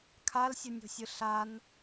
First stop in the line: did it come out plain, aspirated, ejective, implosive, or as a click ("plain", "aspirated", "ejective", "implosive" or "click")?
aspirated